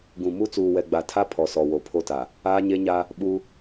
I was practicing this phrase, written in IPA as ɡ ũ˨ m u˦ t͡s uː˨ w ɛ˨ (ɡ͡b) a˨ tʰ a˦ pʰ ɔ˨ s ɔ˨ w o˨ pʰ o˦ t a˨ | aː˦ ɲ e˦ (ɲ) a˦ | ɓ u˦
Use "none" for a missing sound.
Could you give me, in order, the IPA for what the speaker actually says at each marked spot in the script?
ɡ͡b, ɲ

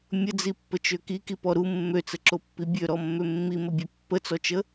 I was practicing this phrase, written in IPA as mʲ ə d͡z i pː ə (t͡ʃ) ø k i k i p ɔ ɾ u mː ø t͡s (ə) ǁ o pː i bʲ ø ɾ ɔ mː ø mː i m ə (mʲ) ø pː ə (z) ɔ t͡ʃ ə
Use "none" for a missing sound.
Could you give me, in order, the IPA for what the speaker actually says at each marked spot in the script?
t͡ʃ, ə, bʲ, t͡s

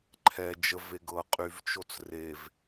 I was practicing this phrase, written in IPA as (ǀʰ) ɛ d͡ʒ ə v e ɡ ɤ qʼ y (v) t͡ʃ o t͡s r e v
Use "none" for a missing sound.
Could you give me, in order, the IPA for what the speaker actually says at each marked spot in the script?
ǃʰ, v

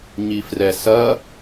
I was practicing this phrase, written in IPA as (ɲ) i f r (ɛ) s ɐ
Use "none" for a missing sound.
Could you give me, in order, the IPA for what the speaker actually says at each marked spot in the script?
ɲ, ɛ

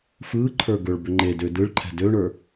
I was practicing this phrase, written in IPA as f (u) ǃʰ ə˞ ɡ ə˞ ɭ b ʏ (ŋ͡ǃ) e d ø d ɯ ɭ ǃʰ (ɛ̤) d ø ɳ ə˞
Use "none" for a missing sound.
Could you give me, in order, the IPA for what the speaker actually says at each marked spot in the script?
ɯ, ŋ͡ǃ, ɛ̤

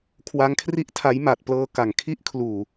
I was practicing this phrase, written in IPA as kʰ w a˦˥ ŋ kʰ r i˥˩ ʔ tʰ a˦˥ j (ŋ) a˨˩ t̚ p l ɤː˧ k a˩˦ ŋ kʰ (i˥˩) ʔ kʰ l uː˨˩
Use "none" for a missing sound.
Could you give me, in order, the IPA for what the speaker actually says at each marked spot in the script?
m, i˦˥

